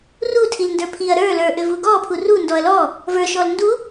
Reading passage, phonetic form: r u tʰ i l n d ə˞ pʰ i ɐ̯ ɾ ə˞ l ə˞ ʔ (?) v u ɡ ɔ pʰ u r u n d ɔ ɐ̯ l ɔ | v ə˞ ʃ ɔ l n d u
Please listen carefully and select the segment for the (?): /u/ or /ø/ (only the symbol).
ø